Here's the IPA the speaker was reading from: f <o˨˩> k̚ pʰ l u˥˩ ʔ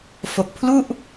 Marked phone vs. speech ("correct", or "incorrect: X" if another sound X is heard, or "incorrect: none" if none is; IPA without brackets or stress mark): correct